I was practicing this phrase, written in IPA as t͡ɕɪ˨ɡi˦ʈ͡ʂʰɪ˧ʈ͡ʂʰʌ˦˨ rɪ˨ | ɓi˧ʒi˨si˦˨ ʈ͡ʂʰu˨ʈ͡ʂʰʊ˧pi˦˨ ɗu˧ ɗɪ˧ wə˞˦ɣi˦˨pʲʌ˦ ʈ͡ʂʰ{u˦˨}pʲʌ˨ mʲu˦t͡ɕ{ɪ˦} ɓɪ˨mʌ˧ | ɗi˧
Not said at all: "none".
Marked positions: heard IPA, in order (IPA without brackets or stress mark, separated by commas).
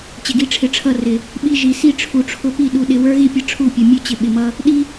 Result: u˦˨, ɪ˧